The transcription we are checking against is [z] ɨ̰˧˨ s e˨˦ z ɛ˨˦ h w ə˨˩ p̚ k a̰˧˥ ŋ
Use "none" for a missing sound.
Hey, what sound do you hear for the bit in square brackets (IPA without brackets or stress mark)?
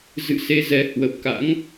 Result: z